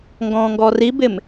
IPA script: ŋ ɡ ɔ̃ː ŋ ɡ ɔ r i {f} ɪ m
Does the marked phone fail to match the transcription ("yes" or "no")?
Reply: yes